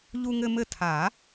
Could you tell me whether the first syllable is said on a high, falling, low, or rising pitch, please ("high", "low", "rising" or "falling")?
high